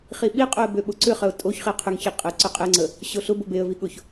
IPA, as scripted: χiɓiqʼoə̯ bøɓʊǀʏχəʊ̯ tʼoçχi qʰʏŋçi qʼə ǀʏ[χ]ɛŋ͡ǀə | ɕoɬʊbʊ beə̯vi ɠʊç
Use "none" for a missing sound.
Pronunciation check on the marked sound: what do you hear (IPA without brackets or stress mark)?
qʼ